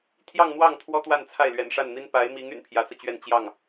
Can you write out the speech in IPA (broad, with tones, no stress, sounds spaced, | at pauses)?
t̪ʰ j ɑ˥˧ ŋ n̪ w ɑ˥˩ ŋ t̪ʰ w ɔ˥ t̪ w a˥˧ n t͡sʰ a˥˩ ɪ̯ l ɥ ɛ̰˨˩ n ʂ a˥˩ n n̪ i˥ n p a˧˥ ɪ̯ m i˧˥ ŋ y̰˨˩ n pʰ j ä˧˥ t͡s ɤ˧ t͡ɕ ɥ ɛ˥˧ n t͡ɕ j ɑ˥˩ ŋ